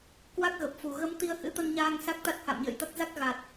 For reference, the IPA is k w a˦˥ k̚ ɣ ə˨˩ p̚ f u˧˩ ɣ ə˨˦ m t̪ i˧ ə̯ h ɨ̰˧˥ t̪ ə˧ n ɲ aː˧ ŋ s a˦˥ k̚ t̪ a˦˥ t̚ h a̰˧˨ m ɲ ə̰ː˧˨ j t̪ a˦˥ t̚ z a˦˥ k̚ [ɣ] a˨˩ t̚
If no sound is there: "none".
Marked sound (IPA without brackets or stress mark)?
ɣ